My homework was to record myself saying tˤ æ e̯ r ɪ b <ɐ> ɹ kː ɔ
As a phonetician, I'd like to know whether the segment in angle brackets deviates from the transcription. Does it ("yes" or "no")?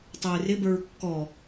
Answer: yes